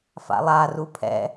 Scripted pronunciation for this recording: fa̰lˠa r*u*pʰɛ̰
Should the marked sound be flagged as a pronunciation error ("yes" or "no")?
no